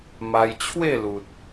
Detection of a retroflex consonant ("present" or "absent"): absent